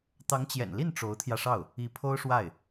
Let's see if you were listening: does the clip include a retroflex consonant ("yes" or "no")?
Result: yes